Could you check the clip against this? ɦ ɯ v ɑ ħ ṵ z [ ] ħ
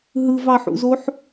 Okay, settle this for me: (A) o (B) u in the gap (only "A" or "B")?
A